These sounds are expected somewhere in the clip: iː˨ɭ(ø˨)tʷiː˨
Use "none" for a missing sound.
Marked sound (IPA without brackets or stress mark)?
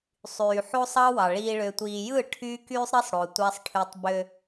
ø˨